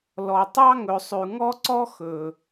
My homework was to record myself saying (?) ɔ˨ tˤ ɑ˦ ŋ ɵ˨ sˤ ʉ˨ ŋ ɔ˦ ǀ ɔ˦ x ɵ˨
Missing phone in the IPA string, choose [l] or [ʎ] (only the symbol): l